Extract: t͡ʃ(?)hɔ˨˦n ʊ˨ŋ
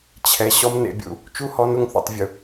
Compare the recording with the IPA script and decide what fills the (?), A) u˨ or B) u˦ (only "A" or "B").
B